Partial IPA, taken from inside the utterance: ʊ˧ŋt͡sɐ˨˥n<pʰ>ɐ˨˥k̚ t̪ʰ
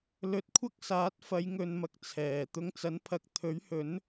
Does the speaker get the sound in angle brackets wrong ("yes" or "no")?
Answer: no